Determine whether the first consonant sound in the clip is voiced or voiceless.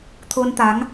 voiceless